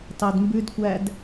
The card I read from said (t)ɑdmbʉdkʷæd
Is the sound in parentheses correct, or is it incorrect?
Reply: correct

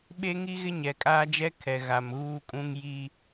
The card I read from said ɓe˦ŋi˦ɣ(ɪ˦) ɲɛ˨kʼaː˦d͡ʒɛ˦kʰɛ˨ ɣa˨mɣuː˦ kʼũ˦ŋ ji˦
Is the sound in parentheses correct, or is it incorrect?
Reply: correct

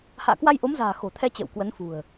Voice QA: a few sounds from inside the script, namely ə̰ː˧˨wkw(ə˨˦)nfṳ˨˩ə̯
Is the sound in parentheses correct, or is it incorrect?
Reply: correct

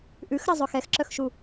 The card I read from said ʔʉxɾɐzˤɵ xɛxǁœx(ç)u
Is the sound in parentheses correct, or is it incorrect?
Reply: incorrect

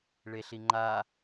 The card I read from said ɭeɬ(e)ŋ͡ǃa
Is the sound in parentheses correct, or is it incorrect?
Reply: incorrect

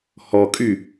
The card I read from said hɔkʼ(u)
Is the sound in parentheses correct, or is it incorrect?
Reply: incorrect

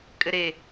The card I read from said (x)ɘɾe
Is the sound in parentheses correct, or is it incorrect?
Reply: incorrect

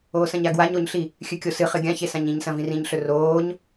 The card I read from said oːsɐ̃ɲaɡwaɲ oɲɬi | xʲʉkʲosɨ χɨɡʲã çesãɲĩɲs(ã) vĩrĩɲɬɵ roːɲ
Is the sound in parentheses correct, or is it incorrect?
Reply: incorrect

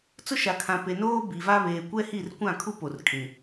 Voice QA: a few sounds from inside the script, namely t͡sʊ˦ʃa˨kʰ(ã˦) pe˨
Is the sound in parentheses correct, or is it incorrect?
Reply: incorrect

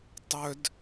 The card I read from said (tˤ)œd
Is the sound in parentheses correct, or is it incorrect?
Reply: correct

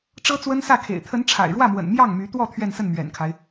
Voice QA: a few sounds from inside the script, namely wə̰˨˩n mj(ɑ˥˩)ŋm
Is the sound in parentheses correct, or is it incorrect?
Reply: correct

